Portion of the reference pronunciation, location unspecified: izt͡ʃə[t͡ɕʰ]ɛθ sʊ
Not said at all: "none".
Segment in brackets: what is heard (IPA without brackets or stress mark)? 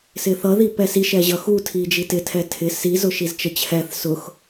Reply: t͡ɕʰ